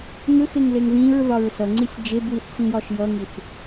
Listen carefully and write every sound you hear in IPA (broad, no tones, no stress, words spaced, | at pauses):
ŋʏxeŋleŋ ðĩɹðɒɹ sʌŋ͡ǀisʲ d͡ʒebwiθsĩjɒʃ jʌŋiθ